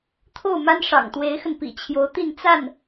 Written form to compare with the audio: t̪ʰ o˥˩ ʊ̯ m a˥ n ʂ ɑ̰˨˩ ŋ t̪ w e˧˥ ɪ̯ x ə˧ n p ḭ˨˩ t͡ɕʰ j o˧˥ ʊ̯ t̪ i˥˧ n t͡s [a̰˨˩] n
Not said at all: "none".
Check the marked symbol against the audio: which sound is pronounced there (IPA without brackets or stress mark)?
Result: a˥˩